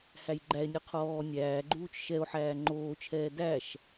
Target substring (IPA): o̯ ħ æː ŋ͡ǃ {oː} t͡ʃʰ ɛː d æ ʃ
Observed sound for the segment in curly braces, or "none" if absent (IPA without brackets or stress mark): oː